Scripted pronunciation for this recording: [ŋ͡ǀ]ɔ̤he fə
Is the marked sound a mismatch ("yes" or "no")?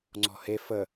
no